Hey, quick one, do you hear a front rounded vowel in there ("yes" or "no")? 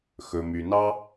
yes